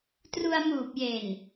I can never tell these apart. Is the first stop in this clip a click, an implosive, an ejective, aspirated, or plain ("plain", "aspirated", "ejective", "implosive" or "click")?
plain